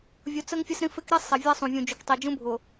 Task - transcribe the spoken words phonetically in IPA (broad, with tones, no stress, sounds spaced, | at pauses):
vʲ u˨ t͡s ə˦ ŋ fʲ ə˦ s ɾ ĩ˦ f ɪ˦ k ɾ i˦ sˤ ɛ˨ vʲ ɛ˦ sˤ ũ˨ vʲ ũ˨ d͡ʒ u˨ k tˤ i˨ d͡ʒ ũ˦ bʱ ʊ˨